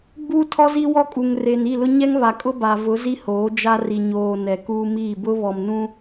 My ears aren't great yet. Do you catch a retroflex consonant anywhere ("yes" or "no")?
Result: no